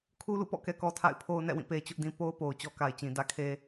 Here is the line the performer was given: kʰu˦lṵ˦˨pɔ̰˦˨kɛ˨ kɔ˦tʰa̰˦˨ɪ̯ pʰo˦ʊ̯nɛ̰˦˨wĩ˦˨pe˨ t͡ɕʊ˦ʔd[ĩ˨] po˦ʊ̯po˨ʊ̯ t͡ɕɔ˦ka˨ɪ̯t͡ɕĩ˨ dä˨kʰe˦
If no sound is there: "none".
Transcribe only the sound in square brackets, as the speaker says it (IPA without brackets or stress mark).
ĩ˦